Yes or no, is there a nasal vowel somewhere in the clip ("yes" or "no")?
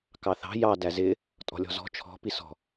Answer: no